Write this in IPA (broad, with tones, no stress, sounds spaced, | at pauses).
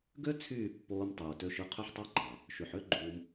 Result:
ɡ ø˦ t͡sʰ yː˦˨ pː oː˧ m tˤ uː˨ t ø˧ ʃ ɯ˧ qʰ ø˧ ħ tˤ ɑ˧ ɡ͡ǃ ɑ˨ | ʃ y˨ ħ ø˦ ɡ͡ǃ uː˧ m